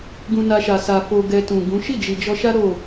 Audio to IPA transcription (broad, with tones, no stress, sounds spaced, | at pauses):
ɡ ũ˧ n a˧ ʃ a˨ s a˨ f o˧ ɡ ɛ˧ t ũ˨ ɡ ũ˨˦ ʃ i˦˨ d͡ʒ i˨ d͡ʒ ɔ˧ ʃ a˦ ɾ o˦˨